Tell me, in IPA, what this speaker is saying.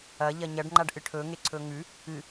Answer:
ɐ ʎɐɲɐɖŋ͡ǃaɖ ʔɨʈʰɵŋe ǀʰɵŋʉ | ɨ

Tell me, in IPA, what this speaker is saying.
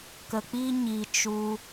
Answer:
kə˧k͡pi˦ ɲi˧t͡ʃu˧

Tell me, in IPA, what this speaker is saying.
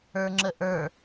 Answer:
ə˞ŋ͡ǁəʔə˞

